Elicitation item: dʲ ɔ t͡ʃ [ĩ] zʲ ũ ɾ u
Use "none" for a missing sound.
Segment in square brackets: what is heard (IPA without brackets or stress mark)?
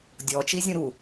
i